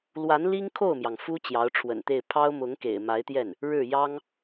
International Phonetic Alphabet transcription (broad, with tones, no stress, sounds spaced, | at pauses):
l w a˧˥ n l i˥ ŋ kʰ o˥˩ ʊ̯ m j ɑ˩ ŋ f u˥ t͡ɕ j ɑ˧˥ ʊ̯ ʈ͡ʂʰ w ə̰˨˩ n t̪ e˥˩ ɪ̯ pʰ ɑ˥ ʊ̯ m ʊ˧˥ ŋ k ḛ˨˩ ɪ̯ m a˧˥ ɪ̯ t̪ j ɛ˥˩ n | ɻ ɻ̩˥˩ j ɑ˥ ŋ